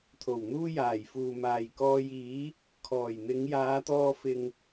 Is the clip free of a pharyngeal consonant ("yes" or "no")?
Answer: yes